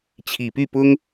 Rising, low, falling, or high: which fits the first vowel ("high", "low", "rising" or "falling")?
low